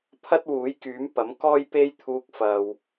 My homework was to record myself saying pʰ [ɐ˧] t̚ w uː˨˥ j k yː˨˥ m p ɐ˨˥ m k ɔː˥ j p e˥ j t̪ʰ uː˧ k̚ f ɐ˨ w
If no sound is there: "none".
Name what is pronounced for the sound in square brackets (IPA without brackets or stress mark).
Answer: ɐ˥